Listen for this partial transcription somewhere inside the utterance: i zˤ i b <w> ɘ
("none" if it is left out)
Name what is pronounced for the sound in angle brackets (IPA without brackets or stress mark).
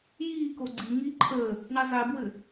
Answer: w